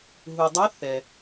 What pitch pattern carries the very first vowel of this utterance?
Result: low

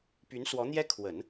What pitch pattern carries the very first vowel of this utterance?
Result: rising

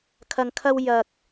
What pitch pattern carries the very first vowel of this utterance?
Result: low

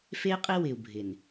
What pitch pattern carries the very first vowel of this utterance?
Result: high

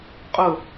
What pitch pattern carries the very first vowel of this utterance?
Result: falling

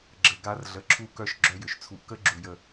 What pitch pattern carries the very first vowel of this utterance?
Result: low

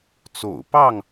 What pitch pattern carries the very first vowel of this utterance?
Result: low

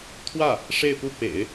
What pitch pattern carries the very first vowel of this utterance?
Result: falling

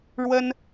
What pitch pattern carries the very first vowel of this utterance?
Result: high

